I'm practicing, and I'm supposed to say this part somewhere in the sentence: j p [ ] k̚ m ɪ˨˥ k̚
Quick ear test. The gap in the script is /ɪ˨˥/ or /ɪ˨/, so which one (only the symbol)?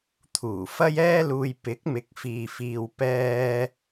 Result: ɪ˨˥